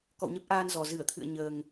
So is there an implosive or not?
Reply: no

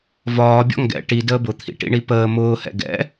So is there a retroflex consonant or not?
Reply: yes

